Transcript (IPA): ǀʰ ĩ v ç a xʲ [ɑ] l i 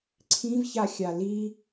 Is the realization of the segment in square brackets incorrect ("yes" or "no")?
yes